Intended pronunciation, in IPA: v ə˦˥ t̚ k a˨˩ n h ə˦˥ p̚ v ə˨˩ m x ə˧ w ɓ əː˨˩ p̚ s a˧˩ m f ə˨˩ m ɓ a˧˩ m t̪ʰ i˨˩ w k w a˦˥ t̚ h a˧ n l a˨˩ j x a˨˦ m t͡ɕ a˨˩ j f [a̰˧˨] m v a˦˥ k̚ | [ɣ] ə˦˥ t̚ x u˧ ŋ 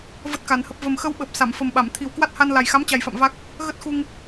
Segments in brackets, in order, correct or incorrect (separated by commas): correct, correct